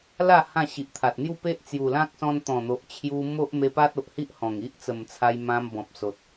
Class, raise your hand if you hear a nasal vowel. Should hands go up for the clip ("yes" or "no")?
yes